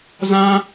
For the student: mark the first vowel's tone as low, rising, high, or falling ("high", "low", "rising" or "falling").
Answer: high